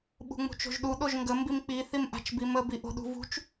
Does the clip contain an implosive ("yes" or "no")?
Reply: yes